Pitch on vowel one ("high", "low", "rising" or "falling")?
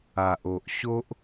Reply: low